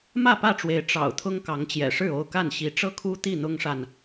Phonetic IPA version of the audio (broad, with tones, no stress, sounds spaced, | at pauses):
m ä˥˨ p ä˥˨ ʈ͡ʂ w e˨˦ ɪ̯ ʈ͡ʂ ɑ̰˨˩ ʊ̯ t̪ʰ ʊ˦ ŋ k ɑ˨˦ ŋ t͡ɕ j ɛ̰˨˩ ʂ ɻ̩˥˨ o˥˨ ʊ̯ k a˥˨ n ɕ i˨˦ ʈ͡ʂ ɤ˥˨ kʰ u˦ t̪ i˥˨ n̪ ʊ˦ ŋ ʂ a˨ n